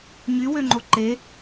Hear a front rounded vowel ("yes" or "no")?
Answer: yes